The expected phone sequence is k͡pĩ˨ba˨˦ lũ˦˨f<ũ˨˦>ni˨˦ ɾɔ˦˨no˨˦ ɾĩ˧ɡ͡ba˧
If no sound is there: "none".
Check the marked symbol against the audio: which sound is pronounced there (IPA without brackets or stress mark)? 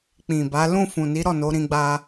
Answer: ũ˨